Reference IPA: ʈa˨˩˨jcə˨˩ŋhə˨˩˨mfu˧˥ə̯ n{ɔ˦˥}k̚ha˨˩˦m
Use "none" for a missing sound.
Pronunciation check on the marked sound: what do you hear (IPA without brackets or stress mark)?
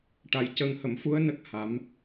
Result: ə˦˥